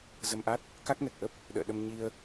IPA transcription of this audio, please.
zə˧mʔa˦˥t̚ | ka˦˥k̚nɛ˨˩k̚ʔə˦˥p̚ | ɗə̰ː˧˨ɗə˧mɲi˧ə̯

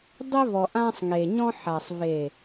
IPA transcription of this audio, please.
dˤe˦vɔ˨ʔã˦sˤ ŋe˨ɲɔ̃˦ħa˨sˤ ve˨

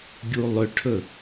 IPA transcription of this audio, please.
ɡʲulˠʏʈʰɵ

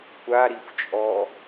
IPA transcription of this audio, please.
kʷaɾixʷt͡ʃʼɔ

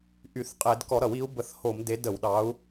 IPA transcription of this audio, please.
ʔy˧˩˧θqʼe˧˩˧d kɔ˧˩˧ɾʌ˧˩˧wi˨˦u̯ bə˧˩˧θho˧˩˧m de˨˦də˧˩˧wɗɑ˨˦u̯

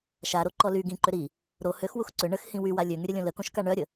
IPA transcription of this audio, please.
ʃaɾoǃɔ ly ɡĩǃʏ ɾi | ɾo høxwux ǀʏ ɳəxhĩ wywa lʲøŋyɾʲəlʲõ ləkõʃka ɳœɾʲə

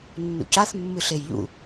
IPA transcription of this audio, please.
nːṵcaθ mːɨɬejʎṵ

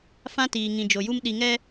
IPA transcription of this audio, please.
fã˦tiː˨ ŋĩ˨d͡ʒo˨ju˦m ɗi˨ŋɛ˦

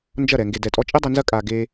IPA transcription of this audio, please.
nd͡ʒɐ˦˨ɾɛ˨ ŋɡe˨dɛ˨tʼɔ˧ t͡ʃʼi˦dˤi˧nzɐ˦ kʼa˧ ɡe˦

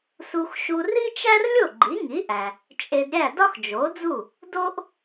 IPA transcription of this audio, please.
su˧xʃu˧ri˥t͡ʃæ˥r lʲo˥˩ɡ͡ǃi˩˥ŋi˩˥ʔæ˩ | t͡ʃʼe˧dɾʲæ˥˩ dɒ˥xd͡ʒo˩˥d͡zu˥˩ | do˥ʔ

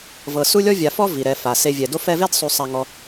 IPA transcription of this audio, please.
vɤ˨ su˥lʲɔ˥vʲa˨fɔ˥ vi˩ɾɛ˨fa˩ se˨vʲɛ˩do˦ fɛ˥ ve˥dsˤu˨sˤa˨ŋɔ˨

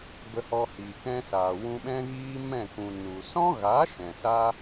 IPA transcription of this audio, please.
bə˨hɔ˨ hi˨kɛ̃˧sa˨ wũ˧ɓɛ̃˦ɣiː˦mɛ̃˦˨ kũ˨ nu˨ sɔ̃˦ɣa˨˦ ʃɛ̃˨saː˦

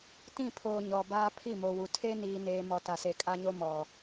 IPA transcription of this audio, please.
tĩ˦˨pʰoː˨ ɲɔ˨baː˦ pʰi˦˨mo˨wu˨ tʰe˦niː˨neː˨mɔ˨ ta˨se˨kʼa˦ɲo˦ mɔ˨

